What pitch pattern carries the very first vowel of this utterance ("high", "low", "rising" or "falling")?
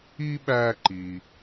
high